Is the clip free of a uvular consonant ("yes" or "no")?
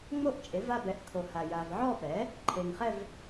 no